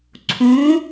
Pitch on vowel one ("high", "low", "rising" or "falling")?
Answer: rising